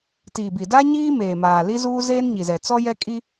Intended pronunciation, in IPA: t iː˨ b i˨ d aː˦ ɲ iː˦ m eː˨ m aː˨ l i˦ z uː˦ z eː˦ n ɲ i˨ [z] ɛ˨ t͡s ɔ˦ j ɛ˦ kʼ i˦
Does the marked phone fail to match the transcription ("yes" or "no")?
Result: no